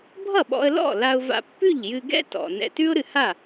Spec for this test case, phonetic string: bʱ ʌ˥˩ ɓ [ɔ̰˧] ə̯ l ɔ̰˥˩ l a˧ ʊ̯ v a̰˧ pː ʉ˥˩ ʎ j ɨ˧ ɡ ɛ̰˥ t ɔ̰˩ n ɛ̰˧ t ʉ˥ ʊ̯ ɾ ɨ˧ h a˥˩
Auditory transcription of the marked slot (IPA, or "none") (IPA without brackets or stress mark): ɔ̰˧